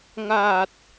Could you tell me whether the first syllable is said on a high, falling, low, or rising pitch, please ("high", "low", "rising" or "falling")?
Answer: low